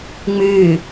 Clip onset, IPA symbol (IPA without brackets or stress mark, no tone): ŋ͡m